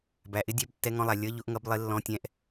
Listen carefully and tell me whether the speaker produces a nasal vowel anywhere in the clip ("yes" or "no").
yes